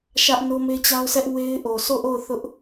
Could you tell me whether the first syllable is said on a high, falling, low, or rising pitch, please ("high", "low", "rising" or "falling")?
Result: high